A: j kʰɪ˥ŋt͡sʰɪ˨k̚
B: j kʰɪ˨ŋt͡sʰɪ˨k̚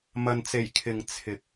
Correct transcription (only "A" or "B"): B